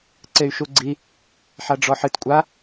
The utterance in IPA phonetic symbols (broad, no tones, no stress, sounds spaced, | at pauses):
ǀ e y̯ ʃ u ɡ͡ǀ i | ħ a ɖ͡ʐ ɔ ħ ɨ t kʷʼ a